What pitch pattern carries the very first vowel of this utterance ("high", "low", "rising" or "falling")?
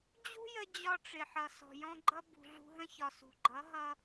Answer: high